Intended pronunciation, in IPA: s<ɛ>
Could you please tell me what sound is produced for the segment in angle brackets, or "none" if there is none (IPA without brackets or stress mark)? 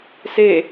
e